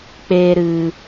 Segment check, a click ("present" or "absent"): absent